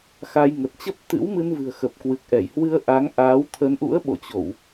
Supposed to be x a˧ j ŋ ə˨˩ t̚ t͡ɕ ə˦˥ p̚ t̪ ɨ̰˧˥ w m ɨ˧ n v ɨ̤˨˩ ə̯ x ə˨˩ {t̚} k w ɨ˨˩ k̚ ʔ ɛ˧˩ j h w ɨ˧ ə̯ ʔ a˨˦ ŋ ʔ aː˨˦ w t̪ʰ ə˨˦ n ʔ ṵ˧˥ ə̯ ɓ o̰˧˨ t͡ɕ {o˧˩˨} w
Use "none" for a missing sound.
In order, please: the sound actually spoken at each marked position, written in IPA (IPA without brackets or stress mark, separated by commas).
p̚, o˧˩˨